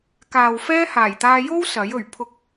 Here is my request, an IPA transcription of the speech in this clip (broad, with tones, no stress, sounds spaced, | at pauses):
k aː˨ w f ɛː˥ h aː˨˩ j t̪ aː˧ j o˥ w s ɐ˨˥ j ɵ˨˩ ɥ pʰ ʊ˨˥ k̚